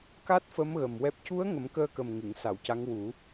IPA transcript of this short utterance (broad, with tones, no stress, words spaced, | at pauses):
ka˦˥t̚fə˧˥m ɣə˨˩mwɛ˦˥p̚ cu˧˥ə̯ ŋə˨˩˦mkəː˧kə˨˩m ŋɨ˨˩˨ŋsa˨˩˨wca˧˥ŋ wu˨˩˦